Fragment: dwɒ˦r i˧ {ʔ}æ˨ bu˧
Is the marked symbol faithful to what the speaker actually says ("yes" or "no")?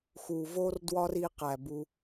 no